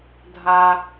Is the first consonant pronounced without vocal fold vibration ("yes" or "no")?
no